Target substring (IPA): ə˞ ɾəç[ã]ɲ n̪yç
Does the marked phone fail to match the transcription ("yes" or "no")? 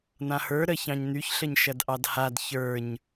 yes